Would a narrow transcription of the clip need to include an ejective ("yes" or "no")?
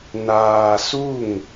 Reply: no